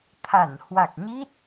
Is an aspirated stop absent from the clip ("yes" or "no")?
no